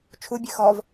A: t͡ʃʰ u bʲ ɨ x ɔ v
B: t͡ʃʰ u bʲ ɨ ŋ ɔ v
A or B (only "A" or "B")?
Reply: A